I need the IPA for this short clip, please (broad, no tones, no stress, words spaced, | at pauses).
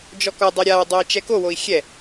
d͡ʒɔkɔdˤɛ ɾʲawdˤoi̯ t͡ʃɛkowoi̯ xʲɛ